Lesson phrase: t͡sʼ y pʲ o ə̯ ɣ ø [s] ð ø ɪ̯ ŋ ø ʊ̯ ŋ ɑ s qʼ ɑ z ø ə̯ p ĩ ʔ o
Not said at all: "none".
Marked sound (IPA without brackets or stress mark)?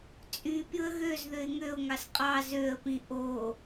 z